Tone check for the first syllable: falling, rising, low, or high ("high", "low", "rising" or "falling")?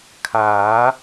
rising